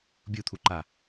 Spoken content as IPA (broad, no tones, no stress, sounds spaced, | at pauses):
bʲ u t̪ʰ u ǃ a